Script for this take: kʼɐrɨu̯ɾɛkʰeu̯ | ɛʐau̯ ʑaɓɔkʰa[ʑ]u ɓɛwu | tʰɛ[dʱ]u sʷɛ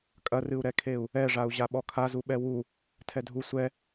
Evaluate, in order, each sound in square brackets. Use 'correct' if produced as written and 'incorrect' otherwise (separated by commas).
incorrect, correct